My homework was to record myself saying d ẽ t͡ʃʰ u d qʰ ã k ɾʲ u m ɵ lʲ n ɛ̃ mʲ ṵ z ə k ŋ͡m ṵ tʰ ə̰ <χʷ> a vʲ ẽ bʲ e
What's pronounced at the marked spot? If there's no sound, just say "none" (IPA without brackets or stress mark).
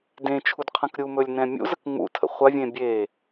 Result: χʷ